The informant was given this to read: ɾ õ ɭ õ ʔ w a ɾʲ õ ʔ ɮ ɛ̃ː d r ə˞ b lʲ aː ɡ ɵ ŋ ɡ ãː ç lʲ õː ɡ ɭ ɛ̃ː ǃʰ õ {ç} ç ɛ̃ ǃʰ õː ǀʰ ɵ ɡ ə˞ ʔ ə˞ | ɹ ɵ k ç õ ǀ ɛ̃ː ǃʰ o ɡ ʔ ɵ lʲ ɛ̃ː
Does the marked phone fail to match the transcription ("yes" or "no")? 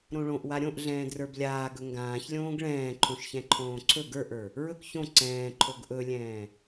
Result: yes